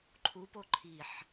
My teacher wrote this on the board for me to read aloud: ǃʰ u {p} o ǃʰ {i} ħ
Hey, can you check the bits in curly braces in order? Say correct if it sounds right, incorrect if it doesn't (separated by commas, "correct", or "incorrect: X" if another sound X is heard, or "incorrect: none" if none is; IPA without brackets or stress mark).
correct, correct